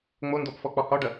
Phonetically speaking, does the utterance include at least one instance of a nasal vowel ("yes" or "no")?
no